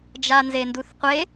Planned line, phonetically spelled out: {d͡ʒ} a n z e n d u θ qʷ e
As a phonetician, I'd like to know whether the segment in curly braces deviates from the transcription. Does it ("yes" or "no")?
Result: no